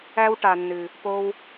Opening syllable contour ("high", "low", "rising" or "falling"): high